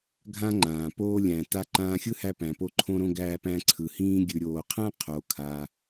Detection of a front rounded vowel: absent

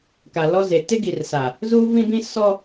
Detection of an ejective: absent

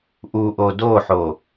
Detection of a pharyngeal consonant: present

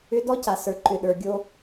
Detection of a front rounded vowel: present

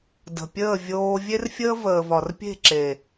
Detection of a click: present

